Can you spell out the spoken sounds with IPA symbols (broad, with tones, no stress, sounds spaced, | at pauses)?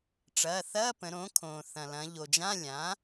ʈ͡ʂ ɐː˩˧˩ θ ɐː˧˥˧ p ə̃˩˧ ɾ õ˩˥ kʰ õː˩ θ ɐ̃˩ l ɐ̃˩˧ ʎ o˩ d͡ʒ ã˧˥˧ lʲ ã˩˥